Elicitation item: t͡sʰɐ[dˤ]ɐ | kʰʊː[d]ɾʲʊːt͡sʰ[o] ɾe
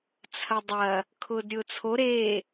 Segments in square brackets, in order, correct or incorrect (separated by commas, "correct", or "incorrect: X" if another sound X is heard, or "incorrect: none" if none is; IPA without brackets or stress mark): correct, correct, correct